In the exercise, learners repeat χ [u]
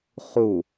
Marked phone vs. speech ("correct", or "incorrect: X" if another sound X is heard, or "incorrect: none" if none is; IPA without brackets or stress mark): correct